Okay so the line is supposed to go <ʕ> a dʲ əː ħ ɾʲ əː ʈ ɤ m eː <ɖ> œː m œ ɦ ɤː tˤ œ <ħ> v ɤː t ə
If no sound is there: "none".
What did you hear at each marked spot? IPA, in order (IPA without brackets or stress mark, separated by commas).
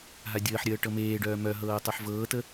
ɦ, ɖ, ħ